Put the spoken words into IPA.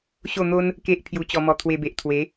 ɕ o˥˧ n̪ o˦ n | k e˦ ʔ pʰ j u˧ t͡ɕ ɔ˧ m ɔ˧ t̪ʰ w e˧ b e˨ ʔ t̪ʰ w e˨˦

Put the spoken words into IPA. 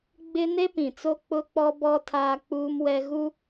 ɡ͡b ɪ˦ n e˦ p ĩ˨ t͡s o˦ k͡p ʊ˦ k͡p ɔ˦ b ɔ˦ tʰ aː˦ k͡p uː˦ m w ɛ˦ ɣ u˦

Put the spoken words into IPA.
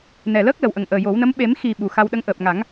n ɛ˨˩ l əː˦˥ k̚ l ə˨˩ w ʔ ə˨˩ ŋ ʔ əː˨˩ j o˨˩˦ w n ə˧˥ m ɓ e˨˩˦ m x i˨˩ ɓ u˨˩ x a˧ w ɗ ə˧˥ ŋ ʔ əː˨˩ p̚ ŋ a˨˩˦ ŋ

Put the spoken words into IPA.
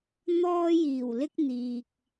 n̪ ɔː˥ j iː˨˩ w l ɪ˥ k̚ n̪ iː˨ k̚

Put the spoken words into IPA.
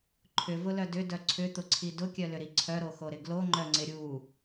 ǃʰ ʏ v ʊ l œ d ʏ d œ ǀʰ ʏ t̪ ʊ ǀʰ i d ʊ kʲ œ l ʏ ɾ i ǀʰ œ ɾ o x o ɾ ɪ ɡ l o ŋ͡ǃ œ ŋ͡ǀ ɪ ɾʲ u

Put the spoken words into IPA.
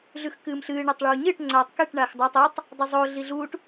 ɮ ʉ x k ɨː m ɬ ɨː ɳ a tˤ ɭ uː ɲ ɨː ʈ ŋ͡ǀ aː tˤ k e ʈ ɳ aː x dˤ a tˤ ɐ tˤ | dˤ ʉ zˤ o ɮ i ɮ uː ʈ

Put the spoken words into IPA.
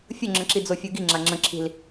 fʲ ʊ ŋ͡ǁ ə̃ ǁ i d͡z o fʲ u ɡ i ŋ͡ǁ a ŋ͡ǁ ə̃ ǁʰ i̤ l

